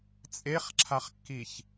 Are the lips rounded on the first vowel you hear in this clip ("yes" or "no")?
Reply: no